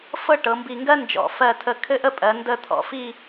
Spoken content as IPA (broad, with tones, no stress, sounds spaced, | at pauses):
f ɤ˥˧ ʈ ɤ˩˧ m b i˧˩ ŋ ɡ ɜ˥ n d͡ʒ ɔ̰˧˩ f ɜ˧˩ tʰ ə˧˩ kʰ ɘ˥˧ ʔ ə˥˧ pʼ ɜ˩˧ n d ə˧˩ t̪ʰ ɔ̰˧ f i˥˧